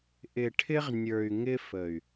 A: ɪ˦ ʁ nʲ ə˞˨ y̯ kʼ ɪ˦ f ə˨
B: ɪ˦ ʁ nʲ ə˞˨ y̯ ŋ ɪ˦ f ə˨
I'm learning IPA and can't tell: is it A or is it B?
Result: B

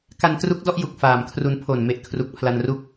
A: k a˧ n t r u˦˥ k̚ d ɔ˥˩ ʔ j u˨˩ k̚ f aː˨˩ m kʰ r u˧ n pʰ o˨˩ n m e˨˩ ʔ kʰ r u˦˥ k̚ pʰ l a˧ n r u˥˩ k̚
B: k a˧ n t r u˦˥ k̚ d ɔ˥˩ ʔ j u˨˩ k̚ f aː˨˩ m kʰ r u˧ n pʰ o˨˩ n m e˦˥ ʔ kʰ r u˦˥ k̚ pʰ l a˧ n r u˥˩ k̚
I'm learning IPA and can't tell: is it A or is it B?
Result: A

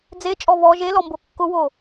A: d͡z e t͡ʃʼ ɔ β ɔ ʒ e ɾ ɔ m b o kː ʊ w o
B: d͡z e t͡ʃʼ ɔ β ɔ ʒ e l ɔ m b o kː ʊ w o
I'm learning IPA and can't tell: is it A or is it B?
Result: B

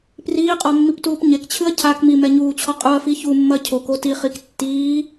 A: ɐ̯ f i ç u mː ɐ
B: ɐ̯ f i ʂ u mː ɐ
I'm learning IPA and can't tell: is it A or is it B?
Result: A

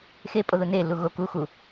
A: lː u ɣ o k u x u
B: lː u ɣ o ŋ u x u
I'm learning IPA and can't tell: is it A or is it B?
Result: A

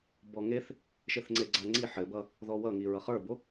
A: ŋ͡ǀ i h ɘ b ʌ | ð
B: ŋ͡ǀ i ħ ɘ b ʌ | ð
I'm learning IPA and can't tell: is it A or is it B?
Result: B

